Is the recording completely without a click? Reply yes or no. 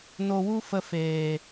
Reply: yes